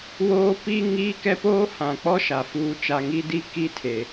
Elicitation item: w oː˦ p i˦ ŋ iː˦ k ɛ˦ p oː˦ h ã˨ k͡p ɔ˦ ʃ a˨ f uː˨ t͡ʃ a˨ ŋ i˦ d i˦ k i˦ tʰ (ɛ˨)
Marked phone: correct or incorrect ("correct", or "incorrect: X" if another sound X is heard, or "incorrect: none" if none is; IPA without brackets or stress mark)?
incorrect: e˨